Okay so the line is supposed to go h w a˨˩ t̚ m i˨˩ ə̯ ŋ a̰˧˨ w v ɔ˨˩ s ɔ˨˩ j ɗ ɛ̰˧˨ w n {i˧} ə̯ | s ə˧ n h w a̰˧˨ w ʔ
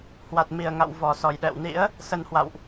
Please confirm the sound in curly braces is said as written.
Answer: no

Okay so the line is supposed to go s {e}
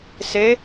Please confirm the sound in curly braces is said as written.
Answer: yes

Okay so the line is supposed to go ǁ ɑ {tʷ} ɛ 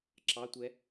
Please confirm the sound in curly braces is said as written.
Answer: yes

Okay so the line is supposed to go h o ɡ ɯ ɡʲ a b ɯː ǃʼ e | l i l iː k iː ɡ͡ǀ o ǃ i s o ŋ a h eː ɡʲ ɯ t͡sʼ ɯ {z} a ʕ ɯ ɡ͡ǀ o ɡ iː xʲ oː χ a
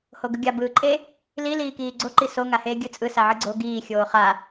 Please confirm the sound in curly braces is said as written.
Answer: no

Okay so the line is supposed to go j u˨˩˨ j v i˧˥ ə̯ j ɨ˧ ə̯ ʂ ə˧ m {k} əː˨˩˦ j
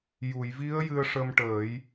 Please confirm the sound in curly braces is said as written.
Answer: no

